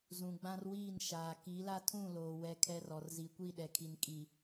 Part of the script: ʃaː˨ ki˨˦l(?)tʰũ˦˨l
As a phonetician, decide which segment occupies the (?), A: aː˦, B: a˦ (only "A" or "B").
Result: B